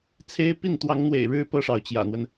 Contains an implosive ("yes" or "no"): no